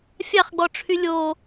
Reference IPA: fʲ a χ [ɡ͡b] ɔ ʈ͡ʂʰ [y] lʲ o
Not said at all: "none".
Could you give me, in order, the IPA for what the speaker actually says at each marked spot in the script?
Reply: ɡ͡b, y

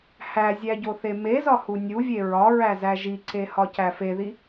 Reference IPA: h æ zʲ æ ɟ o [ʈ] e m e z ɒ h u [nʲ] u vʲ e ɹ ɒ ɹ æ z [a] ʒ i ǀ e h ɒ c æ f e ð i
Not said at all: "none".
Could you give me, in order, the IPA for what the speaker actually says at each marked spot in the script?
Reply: θ, nʲ, æ

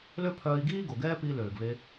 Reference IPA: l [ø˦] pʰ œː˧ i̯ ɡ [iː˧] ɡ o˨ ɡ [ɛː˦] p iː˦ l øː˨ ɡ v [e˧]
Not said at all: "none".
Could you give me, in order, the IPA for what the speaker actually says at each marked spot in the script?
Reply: ø˦, iː˦, ɛː˦, e˧

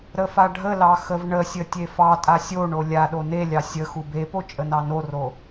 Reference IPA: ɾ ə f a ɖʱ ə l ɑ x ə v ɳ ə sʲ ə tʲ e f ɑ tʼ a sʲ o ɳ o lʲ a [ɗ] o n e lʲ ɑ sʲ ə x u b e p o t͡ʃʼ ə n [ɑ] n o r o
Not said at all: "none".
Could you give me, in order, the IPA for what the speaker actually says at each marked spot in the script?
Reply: ɗ, ɑ

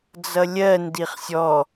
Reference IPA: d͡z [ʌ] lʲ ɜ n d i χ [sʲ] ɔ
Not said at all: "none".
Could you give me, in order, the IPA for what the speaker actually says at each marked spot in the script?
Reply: ʌ, sʲ

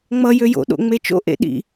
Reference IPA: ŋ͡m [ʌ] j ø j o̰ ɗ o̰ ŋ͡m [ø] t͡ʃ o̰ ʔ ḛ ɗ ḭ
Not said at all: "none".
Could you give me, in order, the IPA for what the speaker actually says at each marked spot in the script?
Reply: ʌ, e

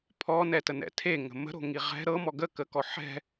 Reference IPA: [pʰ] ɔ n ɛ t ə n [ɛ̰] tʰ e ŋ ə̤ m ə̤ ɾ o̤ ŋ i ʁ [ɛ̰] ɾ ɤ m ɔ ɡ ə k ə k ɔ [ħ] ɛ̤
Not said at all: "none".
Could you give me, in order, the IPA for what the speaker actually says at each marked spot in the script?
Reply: pʰ, ɛ̰, ɛ̤, ħ

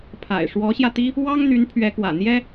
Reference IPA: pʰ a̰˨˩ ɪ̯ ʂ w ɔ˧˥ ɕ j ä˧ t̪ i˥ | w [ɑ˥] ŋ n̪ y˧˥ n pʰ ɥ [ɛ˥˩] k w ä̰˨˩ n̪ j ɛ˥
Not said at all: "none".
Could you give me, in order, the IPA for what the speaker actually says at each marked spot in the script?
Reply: ɑ˥, ɛ˧˥

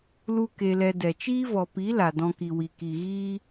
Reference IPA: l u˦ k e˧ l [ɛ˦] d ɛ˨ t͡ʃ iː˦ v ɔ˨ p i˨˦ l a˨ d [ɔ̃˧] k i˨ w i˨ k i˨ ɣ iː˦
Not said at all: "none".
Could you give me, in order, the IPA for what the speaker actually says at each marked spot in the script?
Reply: ɛ˧, ɔ̃˧

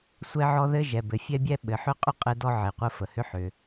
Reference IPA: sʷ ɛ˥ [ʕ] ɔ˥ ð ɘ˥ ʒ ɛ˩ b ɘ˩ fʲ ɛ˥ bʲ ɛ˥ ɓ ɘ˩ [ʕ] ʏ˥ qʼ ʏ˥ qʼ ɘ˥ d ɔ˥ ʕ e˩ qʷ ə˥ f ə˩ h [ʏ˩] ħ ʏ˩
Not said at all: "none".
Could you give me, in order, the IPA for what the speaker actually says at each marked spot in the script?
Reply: ʕ, ħ, ʏ˥

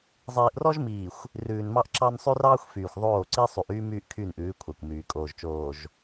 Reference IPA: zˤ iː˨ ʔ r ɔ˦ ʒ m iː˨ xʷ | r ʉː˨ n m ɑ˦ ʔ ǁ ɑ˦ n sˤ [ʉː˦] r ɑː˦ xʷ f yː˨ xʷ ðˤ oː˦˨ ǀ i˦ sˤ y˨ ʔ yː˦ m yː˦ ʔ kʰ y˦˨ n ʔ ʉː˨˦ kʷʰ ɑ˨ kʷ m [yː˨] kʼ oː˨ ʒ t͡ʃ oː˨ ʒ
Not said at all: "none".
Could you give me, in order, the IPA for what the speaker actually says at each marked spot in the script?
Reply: ʉ˦, yː˨

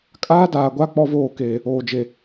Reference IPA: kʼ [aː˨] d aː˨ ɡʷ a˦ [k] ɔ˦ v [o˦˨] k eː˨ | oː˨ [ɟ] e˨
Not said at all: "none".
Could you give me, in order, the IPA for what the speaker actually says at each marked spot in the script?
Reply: aː˦, k͡p, oː˦˨, d͡ʒ

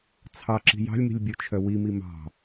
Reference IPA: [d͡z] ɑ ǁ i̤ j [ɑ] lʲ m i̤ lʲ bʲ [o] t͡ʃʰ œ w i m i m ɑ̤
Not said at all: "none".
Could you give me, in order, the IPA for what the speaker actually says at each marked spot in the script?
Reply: t͡sʰ, ɑ̤, o

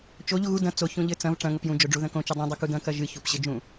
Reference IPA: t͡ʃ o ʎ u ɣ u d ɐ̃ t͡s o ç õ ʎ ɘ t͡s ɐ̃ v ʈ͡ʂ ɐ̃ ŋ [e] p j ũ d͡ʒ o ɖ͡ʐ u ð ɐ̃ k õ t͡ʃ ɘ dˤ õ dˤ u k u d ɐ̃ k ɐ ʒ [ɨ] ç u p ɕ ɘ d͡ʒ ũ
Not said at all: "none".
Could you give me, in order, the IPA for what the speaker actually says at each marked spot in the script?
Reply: ɘ, ɨ

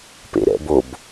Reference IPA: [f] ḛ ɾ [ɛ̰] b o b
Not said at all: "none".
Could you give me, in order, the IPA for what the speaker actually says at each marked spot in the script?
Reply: p, ɛ̰

